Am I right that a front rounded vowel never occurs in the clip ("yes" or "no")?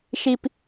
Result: yes